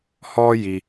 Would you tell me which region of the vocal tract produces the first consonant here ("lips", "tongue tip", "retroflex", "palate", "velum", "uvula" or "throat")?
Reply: throat